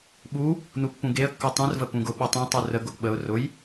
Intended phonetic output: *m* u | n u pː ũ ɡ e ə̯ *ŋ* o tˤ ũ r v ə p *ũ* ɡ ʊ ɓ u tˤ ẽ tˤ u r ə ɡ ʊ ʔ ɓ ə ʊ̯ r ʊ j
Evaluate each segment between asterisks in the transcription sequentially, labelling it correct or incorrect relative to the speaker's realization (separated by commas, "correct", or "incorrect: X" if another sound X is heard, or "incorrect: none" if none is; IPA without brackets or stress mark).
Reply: incorrect: ɓ, incorrect: kː, correct